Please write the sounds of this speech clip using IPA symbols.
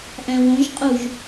ʔ æ̃ w õ ʒ qʼ u ʒ

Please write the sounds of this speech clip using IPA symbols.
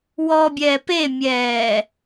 w ɔ bʲ ɛː p e mʲ ɛː

